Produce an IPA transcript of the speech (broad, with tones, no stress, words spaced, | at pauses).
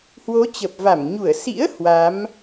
hwo˨˦ t͡ɕə˨˩p̚va˧˩mɲu˧˩ə̯ sḭ˧˥ə̯ hwa˨˦m